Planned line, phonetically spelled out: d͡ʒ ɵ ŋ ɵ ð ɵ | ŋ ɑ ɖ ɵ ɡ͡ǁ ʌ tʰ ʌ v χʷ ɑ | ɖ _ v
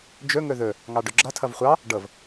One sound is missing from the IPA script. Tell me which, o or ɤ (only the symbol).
ɤ